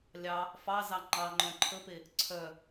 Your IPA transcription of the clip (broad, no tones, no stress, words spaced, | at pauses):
lʲɑ | fɑzɑ ŋ͡ǃɑ ŋ͡ǃœ̃ǃʰəpe | ǀʰœ